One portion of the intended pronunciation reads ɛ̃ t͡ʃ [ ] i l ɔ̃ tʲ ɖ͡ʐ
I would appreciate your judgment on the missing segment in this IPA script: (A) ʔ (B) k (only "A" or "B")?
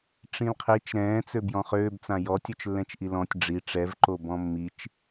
A